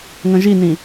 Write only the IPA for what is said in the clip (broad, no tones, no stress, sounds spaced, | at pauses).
ŋ ə̃ ʒ i n ĩ